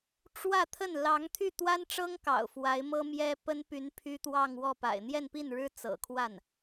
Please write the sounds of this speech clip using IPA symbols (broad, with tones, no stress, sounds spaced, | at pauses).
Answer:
ʈ͡ʂ w ä˥˧ t̪ʰ ə˥˩ n l ɑ˧˥ ŋ t̪ʰ y˥˩ t̪ w a˥ n ʈ͡ʂ ɤ˥ ŋ k ɑ̰˨˩ ʊ̯ f w a˧˥ ɪ̯ m ɤ˥ m j ɛ˥ p ə˥ n p y˧˥ n pʰ y˥ t̪ w ɑ˥˧ ŋ w ɔ˥˩ p a̰˨˩ ɪ̯ n̪ j ɛ˥˧ n p i˥˩ n ɻ ɻ̩˥ t͡s ɤ̰˨˩ kʰ w a˥˩ n